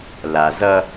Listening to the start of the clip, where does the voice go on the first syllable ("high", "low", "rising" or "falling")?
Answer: low